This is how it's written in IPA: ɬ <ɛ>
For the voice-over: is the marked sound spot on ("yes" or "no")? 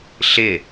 no